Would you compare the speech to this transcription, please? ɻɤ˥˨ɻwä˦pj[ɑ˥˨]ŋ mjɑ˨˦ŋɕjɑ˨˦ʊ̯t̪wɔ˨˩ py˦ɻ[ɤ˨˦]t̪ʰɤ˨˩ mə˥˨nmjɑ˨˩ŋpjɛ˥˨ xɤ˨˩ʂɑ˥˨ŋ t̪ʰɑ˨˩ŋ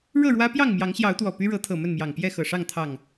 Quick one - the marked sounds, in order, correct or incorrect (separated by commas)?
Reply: correct, correct